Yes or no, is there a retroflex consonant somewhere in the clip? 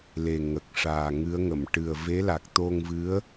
yes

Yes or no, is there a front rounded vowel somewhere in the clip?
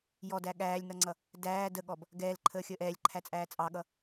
no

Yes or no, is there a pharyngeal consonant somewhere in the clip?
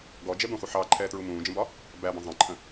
yes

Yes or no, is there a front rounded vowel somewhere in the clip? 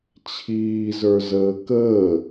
no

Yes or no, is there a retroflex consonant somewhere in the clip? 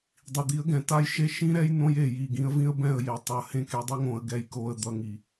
no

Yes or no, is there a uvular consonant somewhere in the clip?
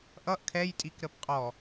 yes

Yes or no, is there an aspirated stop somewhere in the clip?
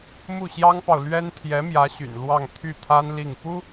yes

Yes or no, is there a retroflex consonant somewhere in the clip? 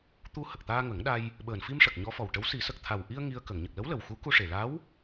yes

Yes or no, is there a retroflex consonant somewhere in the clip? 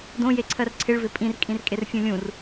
yes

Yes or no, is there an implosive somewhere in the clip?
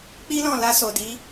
no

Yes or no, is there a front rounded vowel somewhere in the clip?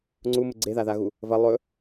no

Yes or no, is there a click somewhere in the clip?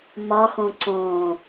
yes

